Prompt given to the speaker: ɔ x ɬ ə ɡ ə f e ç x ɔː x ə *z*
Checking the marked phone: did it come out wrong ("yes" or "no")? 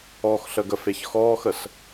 yes